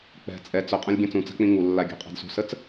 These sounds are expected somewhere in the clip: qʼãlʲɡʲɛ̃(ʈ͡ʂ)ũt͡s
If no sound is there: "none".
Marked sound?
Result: t͡s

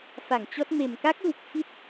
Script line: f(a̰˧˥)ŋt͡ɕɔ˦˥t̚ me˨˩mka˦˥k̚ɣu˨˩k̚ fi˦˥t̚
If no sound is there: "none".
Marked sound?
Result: a˧˩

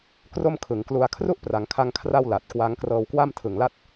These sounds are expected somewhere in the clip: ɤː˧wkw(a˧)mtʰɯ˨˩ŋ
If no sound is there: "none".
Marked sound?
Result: a˥˩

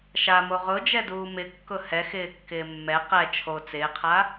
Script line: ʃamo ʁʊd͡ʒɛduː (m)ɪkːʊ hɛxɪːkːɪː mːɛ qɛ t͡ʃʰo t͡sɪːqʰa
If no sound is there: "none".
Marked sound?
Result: m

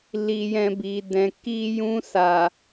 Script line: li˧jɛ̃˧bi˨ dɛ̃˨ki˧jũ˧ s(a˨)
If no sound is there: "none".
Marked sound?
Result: a˨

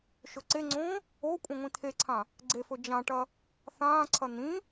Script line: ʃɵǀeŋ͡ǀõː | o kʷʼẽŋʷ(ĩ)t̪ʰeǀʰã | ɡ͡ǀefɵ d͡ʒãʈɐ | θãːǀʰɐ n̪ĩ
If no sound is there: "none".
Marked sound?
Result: ĩ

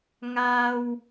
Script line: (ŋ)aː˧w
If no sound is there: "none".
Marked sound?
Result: ŋ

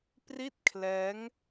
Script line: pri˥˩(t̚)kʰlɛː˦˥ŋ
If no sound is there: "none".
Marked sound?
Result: t̚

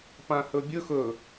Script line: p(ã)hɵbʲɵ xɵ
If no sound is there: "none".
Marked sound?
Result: ã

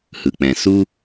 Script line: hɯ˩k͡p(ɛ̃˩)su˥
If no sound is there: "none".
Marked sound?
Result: ɛ̃˩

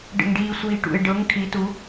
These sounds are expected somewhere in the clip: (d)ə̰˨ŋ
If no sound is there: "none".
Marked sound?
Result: ɖ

